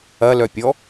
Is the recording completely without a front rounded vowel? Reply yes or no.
no